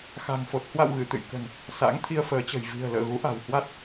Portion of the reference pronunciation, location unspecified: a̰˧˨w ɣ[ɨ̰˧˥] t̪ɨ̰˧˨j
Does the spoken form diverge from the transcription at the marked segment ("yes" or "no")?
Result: yes